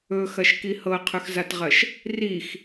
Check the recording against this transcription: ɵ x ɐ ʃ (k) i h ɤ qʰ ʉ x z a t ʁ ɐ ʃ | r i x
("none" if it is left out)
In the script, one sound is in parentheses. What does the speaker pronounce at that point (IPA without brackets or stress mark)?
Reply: k